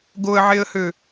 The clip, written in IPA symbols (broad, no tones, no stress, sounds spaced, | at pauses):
ɡ o ə̯ ʕ e ə̯ h ø